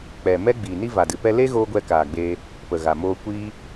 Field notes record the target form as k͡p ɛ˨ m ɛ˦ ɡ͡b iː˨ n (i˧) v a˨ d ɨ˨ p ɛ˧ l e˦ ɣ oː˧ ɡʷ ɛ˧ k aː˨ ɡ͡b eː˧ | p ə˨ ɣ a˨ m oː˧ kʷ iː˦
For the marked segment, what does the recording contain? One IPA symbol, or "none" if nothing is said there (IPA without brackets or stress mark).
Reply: i˦